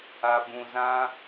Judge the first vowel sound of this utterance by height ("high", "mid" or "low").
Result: low